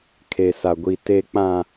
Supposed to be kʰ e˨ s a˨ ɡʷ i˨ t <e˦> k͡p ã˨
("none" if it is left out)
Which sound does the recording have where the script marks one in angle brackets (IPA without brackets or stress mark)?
e˨